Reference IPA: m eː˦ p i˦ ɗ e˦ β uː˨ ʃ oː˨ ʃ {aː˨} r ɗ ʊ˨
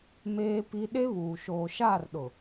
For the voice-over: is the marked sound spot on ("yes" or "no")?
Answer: no